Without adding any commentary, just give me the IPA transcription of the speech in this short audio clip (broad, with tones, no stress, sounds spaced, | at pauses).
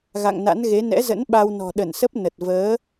ɣ a̰˧˨ ŋ n a̰˧˥ n ɣ e˨˦ n ɛ̰˧˥ z ə̰˧˥ n ɓ a˧ w n ɔ̤˨˩ ɗ ə˧˩ n s ə˦˥ p̚ n ə˨˩ t̚ v əː˨˦